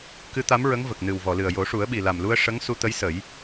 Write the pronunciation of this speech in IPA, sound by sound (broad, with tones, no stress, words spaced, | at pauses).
kɨ˧˥t̪a˧˥mɹə˧˥ŋ və˨˩k̚nɨ˨˩wvɔ˨˩˨lɨ˨˩ə̯ jo˨˩˦ʂu˨˩˦ə̯ɓi˨˩ la˨˩mlu˧ə̯ ʂə˧˥ŋ su˧t̪ə˧˥jsə˨˩˦j